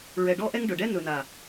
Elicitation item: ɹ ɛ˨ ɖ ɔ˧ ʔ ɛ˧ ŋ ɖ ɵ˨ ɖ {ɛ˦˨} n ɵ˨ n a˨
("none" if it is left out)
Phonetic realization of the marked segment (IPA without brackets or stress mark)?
ɛ˦